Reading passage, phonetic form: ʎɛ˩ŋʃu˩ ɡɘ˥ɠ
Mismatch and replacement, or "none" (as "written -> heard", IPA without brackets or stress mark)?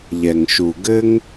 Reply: ɠ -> ŋ